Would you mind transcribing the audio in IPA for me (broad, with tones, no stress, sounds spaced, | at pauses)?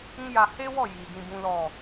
ĩ˦ j a˧ h e˦ w ɔ˦˨ j i˨ ɡ ĩ˧ b ũ˦ l ɔ˦˨